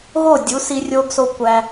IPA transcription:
ɣ o˦˨ dʲ u˨˦ s i˦ rʲ o˦ ɡ s o˦ kʷ æ˧

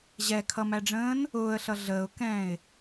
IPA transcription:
ʑ ɛ kʰ ʌ m æ ɖ͡ʐ ə̃ː n | ʊː ə̯ ɬ ʌ ɮ əː ʊ̯ k ɛ̃ː ɪ̯

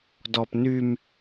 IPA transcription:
d ɔ p n y m

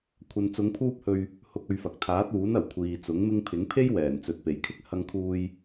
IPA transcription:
kʷʰ ɐ˨ n t͡s ʊ˨˧ ŋ pʰ uː˧ p̚ h ɵ˨ ɥ | h ʊ˧ k̚ ɵ˧ ɥ f ɐ˨ k̚ t̪ʰ aː˨˥ t̚ uː˨˥ n ɐ˨˩ w kʷʰ iː˨ t͡s ʊ˨˥ ŋ m ɪ˧ ŋ pʰ ɪ˨˥ ŋ pʰ e˥ j w ɛː˨˩ n t͡s ɵ˨ t̚ p e˨˩ j kʰ ɪ˥ k̚ h ɐ˧ ŋ kʰ uː˧ j

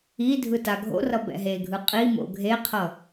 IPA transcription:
i dʱ ɯ t a ɡʱ o̰ r ʌ b ɛ̰ ɦ e ɡʱ ɯ qʼ i m o̰ ɡʱ e qʰ ʌ

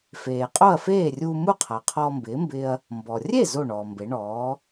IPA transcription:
f eː˩ qʼ o˥˩ ɐ̯ f eː˥˩ rʲ uː˧ m u˥˩ qʰ a˩ qʰ ɔː˧ m b ɪː˩˥ m b ɪː˧ ɐ̯ | m b ɔ˩ rʲ e˥˩ z o˥˩ ɳ ɔː˩ m b e˩˥ ɳ ɔː˩˥

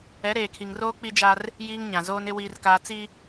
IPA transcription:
ɛ˨˦ ɾ eː˨ kʰ i˨ ŋ r oː˦ k͡p i˦ d͡ʒ a˦ r | j iː˦ ŋ ɲ ã˨ z oː˦ n ɪ˦ w iː˦ r k aː˦ t͡s i˦

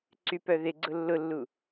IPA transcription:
ǀ y p œ ð ɪ ɡ͡ǀ ʊ lː ʊ lː u

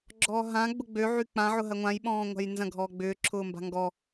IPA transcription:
ɡ͡ǁ ɔː ɦ ã ɡ͡b ʊ ɡ͡b ø ʕ y k͡p ã ʕ ʊ ɦ ɐ ŋʷ ã j ɓ ɔ̃ː ŋʷ a̤ j n z ɐ̃ ɡʱ ɔː ɡ͡b ʏː ǁʰ ʊː m b a̤ ŋ ɡ ɔ

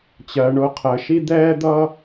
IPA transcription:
t͡ɕ ɜ˩ ɳ ʊː˨ qʰ əː˩ ʃ i˦ d̪ ɛː˦ d̪ ʌː˦

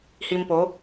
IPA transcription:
h i˧ m p o˨˦

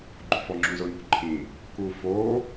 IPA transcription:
ɡ͡ǃ ṳ f ɔ ŋ͡ǁ ũ z ʊ n ṳ ǃʰ ĩ | k u f o

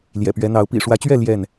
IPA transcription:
l j ɛ̰˨˩ p ɥ ɛ˨˦ n̪ ɑ˨˦ ʊ̯ p ḭ˨˩ ʂ w ä˨˦ t͡ɕ ɥ ɛ˥˨ l j ɛ˥˨ n

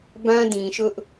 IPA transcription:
b ã˦ d ĩ˨ ʃ ʊ˦ ʔ

